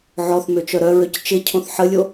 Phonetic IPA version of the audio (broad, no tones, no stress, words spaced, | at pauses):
ʕɔθmøt͡ʃœ ɾœɹøc t͡ʃɪcʰõθ ħəlʲo